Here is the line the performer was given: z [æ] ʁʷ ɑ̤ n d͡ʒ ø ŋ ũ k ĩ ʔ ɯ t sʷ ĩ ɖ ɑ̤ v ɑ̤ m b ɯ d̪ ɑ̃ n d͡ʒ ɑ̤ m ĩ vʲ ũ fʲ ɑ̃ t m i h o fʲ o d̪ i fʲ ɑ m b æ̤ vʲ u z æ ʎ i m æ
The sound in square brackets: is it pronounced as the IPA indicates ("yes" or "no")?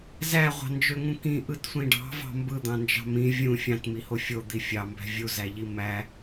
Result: yes